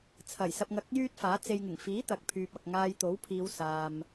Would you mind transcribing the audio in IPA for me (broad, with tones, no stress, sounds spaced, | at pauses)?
t͡sʰ ɐ˨˩ j s ɐ˧ p̚ ŋ ɐ˧ k̚ j yː˥ t̚ f aː˨˥ t͡s e˨ j ŋ ɪ˨˩ ŋ f iː˨˥ t̪ ɐ˨ k̚ pʰ yː˨ p̚ ɐ˨ k̚ ŋ aː˧ j t̪ o˨˥ w pʰ iː˨˧ w s aː˧ m